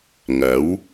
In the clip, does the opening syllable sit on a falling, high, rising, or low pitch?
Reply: rising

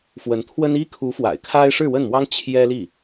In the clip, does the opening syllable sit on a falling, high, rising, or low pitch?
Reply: rising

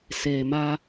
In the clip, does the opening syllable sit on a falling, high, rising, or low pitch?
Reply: low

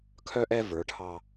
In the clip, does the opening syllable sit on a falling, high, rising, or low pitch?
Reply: high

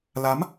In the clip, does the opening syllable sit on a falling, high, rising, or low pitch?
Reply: rising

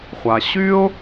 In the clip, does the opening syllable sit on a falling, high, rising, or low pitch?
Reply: low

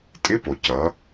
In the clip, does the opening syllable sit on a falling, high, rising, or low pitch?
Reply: rising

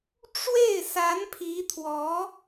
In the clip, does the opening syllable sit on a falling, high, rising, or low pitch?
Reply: falling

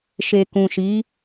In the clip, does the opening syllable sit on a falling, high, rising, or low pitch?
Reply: low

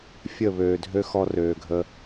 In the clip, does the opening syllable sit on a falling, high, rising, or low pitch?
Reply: falling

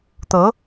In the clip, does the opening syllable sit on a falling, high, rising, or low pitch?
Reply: rising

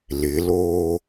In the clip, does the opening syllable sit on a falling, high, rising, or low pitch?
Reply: rising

